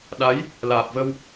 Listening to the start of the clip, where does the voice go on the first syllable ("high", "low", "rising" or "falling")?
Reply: rising